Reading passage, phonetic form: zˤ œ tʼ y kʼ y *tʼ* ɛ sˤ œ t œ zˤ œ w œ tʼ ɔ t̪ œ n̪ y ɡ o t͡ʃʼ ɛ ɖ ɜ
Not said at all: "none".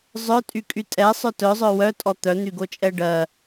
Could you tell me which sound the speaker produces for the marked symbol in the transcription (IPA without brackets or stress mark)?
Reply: tʼ